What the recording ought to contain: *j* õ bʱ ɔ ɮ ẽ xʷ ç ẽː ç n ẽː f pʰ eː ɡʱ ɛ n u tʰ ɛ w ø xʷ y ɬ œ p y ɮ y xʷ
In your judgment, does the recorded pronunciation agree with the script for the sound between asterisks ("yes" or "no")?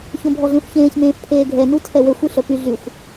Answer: no